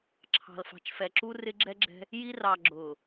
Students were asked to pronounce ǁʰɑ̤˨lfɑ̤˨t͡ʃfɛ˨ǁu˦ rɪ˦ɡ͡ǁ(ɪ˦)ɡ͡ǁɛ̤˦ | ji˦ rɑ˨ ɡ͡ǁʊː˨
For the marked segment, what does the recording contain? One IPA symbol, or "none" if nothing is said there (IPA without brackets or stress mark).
ɛ˦